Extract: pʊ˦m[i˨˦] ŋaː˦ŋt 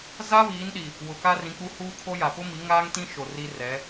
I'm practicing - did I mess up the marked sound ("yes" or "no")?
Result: no